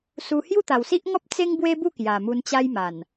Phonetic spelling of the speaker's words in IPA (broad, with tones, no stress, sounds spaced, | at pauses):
s u˧ h j u˥˧ t̪ a˨˩ w s i˦ ʔ ŋ ɔ˦ p̚ t͡s e˦ ŋ b w e˦ b u˥˧ k j a˨˩ m u˧ n t͡ɕ a˦ j m a˨˩ n